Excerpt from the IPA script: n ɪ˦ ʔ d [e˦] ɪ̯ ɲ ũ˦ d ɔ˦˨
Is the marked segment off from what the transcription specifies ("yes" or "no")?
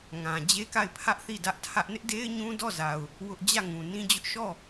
no